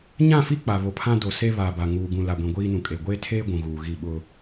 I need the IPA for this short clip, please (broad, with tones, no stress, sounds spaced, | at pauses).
ɲ ã˦˨ f i˦ k͡p a˨ β o˨ pʰ ã˦ d o˨ s e˦ β a˨ b a˨ ŋ uː˨ ɡ ũ˨ l a˨ ɡʷ ĩ˨ ɡʷ iː˦ n ũ˨ kʼ e˨ ɡʷ eː˦ tʰ eː˦ ɡʷ ũ˨ ɣ uː˨ ɣ i˦˨ ɓ ʊ˦